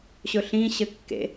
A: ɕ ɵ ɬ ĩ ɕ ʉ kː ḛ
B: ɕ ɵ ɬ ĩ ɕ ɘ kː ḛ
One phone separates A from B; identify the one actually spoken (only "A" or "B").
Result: B